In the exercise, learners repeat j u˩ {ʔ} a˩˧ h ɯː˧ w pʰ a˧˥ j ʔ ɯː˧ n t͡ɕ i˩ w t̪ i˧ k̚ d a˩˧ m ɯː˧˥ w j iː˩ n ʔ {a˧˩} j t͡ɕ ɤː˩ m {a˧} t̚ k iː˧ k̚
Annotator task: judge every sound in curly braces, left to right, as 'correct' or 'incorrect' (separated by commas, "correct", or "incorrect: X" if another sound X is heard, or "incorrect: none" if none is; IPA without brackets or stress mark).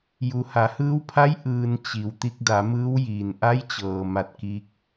incorrect: h, incorrect: a˧˥, incorrect: a˧˩